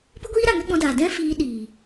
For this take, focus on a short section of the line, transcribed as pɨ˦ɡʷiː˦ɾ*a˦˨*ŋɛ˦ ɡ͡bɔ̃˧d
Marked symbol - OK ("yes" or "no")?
yes